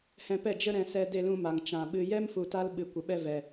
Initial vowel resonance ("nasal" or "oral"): nasal